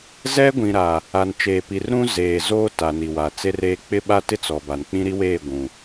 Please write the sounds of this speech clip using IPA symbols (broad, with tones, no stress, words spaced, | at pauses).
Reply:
zɛ˦ɡʷĩ˨ɾaː˨ | a˨nt͡ʃeː˨pi˨r ɾũ˦ zeː˨ zoː˦ta˨ ni˨wa˨t͡se˦reː˦ k͡pɪ˦ɓa˦tɪ˦t͡sɔ˨ ba˨nk͡pĩ˦ɾi˦weː˦˨ ɡʷũ˨